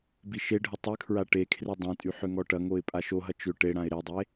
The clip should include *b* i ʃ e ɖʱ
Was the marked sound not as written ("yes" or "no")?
no